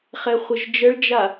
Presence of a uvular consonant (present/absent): present